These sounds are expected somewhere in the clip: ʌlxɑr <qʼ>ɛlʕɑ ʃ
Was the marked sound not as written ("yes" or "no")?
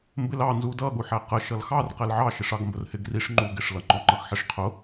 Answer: yes